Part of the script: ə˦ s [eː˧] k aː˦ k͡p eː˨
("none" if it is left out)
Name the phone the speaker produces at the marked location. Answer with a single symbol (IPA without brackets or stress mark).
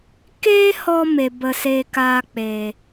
eː˦